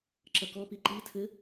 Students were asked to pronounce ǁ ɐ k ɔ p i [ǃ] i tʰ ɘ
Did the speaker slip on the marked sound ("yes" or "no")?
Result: no